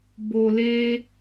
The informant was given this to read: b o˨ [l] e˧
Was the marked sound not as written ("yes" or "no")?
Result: no